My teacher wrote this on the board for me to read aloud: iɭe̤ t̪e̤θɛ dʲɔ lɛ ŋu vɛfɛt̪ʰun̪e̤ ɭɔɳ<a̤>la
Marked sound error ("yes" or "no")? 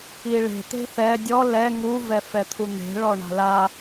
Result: no